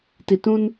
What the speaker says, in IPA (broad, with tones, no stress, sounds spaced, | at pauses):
t i˨ t ũ˦ n